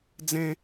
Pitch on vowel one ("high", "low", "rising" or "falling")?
high